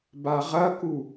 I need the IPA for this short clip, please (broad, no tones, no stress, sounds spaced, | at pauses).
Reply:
b a ʁ ɐ k u